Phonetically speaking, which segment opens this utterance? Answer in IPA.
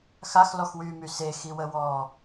x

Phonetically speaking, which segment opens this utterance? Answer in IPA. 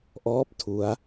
ʔ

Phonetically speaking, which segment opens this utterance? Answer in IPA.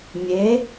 mʲ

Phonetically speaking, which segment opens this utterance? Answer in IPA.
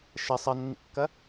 ʃ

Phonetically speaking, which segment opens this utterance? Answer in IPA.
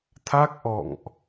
t̪ʰ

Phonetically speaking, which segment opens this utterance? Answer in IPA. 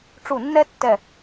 ʈ͡ʂ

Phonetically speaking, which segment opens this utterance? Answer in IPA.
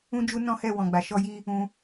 ũ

